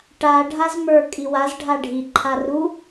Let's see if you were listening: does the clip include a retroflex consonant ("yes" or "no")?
yes